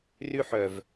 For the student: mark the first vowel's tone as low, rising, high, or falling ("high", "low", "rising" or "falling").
high